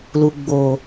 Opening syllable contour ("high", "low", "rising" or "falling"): low